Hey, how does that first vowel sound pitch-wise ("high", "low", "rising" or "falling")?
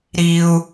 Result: low